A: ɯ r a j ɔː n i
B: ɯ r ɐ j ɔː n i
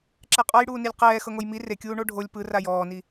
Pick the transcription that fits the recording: A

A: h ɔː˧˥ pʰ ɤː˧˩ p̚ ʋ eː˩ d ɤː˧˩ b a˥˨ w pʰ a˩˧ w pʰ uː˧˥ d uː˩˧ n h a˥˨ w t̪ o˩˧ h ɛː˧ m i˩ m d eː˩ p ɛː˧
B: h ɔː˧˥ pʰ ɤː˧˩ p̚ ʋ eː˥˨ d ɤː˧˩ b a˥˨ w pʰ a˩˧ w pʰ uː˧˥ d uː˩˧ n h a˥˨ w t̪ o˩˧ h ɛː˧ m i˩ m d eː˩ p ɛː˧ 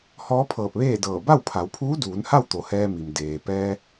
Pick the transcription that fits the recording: B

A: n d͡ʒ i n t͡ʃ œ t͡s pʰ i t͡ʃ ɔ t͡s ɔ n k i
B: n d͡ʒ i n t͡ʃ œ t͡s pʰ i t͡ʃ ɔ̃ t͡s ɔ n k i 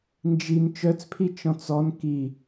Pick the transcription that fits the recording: B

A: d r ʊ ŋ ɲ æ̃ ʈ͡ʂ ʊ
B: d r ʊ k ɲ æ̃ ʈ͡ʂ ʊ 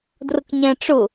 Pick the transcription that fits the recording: B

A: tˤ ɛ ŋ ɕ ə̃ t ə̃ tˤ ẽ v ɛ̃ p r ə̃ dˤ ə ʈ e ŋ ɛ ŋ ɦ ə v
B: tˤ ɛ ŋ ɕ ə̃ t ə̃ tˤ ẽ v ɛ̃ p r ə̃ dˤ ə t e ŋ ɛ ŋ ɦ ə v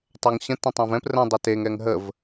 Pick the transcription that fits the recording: B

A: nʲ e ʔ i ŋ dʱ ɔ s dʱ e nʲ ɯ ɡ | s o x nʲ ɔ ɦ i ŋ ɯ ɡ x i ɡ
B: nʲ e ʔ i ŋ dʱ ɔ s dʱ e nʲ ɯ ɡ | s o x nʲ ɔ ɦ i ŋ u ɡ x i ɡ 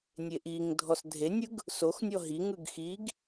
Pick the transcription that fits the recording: A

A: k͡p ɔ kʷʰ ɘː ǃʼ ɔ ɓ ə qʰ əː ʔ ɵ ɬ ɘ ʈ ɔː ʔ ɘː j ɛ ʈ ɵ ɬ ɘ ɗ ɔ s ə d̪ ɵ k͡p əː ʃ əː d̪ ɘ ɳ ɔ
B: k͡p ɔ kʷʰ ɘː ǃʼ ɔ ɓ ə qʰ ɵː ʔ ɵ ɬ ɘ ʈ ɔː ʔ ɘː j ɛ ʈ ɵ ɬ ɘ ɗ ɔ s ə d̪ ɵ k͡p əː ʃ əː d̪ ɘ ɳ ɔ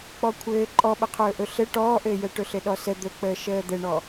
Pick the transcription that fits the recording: B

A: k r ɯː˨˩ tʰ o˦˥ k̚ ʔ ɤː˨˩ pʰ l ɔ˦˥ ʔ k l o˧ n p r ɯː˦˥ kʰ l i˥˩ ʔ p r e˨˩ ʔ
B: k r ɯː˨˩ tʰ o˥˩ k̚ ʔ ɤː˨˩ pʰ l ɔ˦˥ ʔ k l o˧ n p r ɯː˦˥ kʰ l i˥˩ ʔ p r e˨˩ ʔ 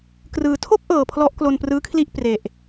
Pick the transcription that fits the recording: B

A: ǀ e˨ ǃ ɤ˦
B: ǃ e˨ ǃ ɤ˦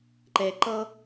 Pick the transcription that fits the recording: B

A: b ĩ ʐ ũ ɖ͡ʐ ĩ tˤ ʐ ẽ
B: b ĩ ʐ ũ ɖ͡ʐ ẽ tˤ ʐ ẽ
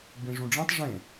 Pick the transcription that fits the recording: A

